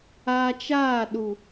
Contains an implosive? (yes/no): yes